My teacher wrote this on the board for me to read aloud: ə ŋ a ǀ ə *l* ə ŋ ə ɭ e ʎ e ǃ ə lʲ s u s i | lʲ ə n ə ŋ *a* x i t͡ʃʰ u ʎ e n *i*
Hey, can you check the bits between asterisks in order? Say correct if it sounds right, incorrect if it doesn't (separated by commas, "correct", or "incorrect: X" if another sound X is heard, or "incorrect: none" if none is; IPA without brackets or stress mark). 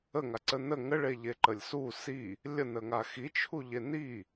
incorrect: n, correct, correct